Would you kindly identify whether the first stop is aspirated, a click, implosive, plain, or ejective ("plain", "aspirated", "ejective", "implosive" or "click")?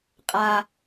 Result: ejective